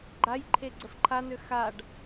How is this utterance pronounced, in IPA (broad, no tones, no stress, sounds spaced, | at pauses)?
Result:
ɡ͡ǃ a j ǃʰ e ɡ͡ǀ ə f ǃʰ a n ø x a ɖ